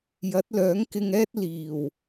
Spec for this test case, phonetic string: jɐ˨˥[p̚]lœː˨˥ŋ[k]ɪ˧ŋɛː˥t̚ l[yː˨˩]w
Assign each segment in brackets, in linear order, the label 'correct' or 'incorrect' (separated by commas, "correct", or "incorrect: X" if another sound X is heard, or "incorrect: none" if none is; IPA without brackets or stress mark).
incorrect: t̚, correct, incorrect: iː˨˩